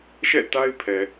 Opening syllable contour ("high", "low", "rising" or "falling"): falling